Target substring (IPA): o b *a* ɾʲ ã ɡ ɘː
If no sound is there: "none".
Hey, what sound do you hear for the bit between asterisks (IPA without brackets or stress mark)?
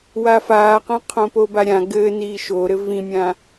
a